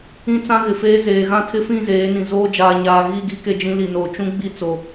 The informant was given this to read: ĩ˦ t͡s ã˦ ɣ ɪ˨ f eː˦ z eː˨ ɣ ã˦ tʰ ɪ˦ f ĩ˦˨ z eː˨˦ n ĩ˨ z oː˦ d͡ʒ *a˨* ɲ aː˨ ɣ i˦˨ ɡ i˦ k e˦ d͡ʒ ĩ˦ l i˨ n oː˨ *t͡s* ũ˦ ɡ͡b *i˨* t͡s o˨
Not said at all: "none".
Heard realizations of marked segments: aː˨, t͡ʃ, i˦

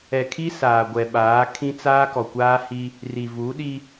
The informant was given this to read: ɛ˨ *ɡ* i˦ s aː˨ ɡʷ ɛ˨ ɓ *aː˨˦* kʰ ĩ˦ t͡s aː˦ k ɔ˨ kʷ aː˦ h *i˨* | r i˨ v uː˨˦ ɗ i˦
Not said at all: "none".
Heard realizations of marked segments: kʰ, aː˨˦, i˦

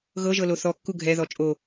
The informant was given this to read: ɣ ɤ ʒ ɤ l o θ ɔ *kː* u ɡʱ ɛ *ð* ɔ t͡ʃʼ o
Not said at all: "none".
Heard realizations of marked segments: kː, ð

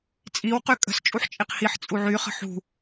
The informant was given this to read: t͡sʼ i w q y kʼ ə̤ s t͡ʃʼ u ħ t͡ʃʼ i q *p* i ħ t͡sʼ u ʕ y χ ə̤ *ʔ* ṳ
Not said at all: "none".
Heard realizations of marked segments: h, ħ

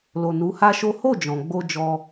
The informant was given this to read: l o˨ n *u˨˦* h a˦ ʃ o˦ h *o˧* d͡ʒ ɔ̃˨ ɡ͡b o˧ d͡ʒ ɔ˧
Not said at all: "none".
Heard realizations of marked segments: u˨˦, o˦˨

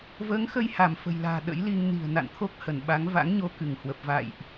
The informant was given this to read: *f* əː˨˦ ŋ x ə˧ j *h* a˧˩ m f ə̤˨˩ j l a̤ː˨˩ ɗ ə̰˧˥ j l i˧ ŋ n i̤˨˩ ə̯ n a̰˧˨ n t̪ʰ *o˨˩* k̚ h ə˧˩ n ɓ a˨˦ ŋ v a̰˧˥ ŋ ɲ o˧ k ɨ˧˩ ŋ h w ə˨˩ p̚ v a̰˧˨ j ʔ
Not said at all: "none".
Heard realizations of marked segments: v, h, o˦˥

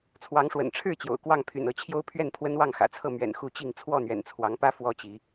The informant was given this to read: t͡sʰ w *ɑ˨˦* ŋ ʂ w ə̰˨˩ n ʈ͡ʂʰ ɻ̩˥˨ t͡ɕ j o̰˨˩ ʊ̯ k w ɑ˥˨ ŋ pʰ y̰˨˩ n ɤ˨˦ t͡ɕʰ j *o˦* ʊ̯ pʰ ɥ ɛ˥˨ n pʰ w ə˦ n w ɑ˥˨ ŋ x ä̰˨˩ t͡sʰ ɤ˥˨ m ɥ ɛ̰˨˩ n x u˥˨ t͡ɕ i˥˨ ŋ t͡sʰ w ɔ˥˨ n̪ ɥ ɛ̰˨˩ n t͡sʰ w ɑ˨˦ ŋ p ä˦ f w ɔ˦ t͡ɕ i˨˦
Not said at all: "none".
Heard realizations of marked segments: ɑ˨˦, o˦

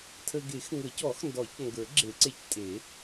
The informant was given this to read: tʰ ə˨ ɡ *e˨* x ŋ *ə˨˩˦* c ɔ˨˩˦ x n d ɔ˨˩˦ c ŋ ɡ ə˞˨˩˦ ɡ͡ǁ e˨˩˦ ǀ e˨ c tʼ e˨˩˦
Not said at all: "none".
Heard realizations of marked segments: e˨˩˦, ə˨˩˦

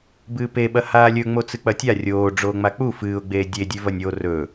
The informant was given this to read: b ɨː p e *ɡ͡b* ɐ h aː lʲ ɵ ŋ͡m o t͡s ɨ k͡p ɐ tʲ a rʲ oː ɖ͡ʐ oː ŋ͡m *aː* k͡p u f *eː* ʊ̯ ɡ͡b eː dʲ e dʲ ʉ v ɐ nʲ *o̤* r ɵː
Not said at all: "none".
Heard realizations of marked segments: ɓ, a, ɨː, o

